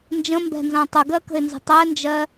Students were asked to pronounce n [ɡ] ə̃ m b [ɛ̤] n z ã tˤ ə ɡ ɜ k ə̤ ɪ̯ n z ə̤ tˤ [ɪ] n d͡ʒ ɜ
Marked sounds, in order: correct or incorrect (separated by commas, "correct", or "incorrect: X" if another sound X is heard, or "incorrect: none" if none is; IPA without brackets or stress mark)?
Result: incorrect: d͡ʒ, correct, incorrect: ɛ